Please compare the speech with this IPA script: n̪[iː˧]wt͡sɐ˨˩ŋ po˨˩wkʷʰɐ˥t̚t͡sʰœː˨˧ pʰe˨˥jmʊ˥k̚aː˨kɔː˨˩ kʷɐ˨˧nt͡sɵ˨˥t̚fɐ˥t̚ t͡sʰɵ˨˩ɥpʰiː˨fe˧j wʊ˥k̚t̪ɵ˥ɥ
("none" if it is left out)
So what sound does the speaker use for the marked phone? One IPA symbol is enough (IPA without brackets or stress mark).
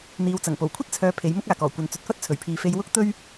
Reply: iː˨˧